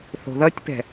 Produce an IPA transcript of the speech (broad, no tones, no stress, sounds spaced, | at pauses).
θ o̤ ð ʌ tʲ p ɛ̤